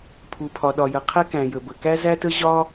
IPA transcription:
pʰ u˩ pʰ ɒ˩ ɗ ɒ˩ j ə˩ qʰ ɛ˥ k æ̃˩ j ə˩ b ə˩ k æ˥ z æ˥ t ə˥ ʑ ɒ˥

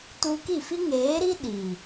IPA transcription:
t u˧ k i˦˨ f i˦ ŋ eː˨˦ ɾ i˦ ɗ i˨

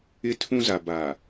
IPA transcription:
ɪ˦ tʰ ũ˦ z a˨ b a˨

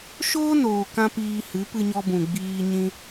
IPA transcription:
ʃ oː˦ n oː˨ k ã˧ p iː˧ h ɨ˨˦ p ɨ˧ ɲ ɔ˧ b ũ˨ ɡ͡b iː˧ ɲ ĩ˧

